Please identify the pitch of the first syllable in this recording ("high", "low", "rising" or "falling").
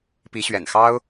rising